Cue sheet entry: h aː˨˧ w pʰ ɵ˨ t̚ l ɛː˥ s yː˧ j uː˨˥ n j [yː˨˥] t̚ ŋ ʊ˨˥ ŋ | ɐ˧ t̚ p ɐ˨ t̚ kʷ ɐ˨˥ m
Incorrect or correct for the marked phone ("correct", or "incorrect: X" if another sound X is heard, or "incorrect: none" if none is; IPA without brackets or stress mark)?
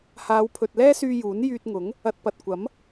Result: incorrect: yː˧